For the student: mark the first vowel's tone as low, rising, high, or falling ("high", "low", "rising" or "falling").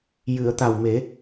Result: low